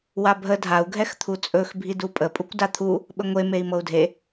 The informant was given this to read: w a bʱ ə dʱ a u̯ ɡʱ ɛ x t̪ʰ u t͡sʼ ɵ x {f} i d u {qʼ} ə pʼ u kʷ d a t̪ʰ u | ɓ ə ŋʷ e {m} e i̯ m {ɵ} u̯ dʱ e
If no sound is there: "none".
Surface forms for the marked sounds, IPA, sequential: bʱ, pʼ, m, ɤ

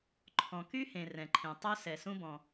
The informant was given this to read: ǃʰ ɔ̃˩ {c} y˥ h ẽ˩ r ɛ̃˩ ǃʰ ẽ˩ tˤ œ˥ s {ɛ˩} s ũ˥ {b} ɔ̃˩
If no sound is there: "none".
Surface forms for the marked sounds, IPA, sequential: k, ɛ˩, b

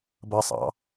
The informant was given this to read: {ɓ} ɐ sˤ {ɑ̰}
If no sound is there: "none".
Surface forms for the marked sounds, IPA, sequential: b, ɑ̰

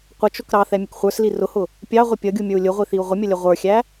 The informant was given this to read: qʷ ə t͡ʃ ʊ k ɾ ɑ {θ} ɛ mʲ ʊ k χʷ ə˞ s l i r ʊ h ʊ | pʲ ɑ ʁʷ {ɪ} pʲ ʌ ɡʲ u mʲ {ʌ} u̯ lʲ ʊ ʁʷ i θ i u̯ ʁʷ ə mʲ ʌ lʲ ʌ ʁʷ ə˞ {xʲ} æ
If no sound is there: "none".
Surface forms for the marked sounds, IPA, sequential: θ, ɪ, ə˞, xʲ

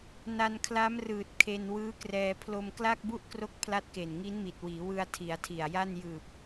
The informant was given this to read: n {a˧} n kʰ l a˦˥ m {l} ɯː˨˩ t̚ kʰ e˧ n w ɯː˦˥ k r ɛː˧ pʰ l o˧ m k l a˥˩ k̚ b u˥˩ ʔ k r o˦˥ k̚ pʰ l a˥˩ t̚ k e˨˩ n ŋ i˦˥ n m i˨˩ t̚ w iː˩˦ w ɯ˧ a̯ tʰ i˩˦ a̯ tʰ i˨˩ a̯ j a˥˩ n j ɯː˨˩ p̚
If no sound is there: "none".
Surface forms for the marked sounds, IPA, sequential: a˧, r

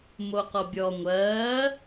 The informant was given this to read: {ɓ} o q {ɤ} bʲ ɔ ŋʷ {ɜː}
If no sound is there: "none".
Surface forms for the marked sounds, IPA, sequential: m, ɔ, ɜː

